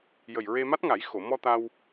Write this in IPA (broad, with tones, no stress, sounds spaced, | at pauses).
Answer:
j ə˨˩ j ɹ e˧ m a˦˥ t̚ ŋ a˨˩˦ j x o˨˩˨ m ɔ˧ t̪ a˧ w